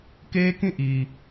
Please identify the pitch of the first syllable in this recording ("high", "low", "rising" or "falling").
high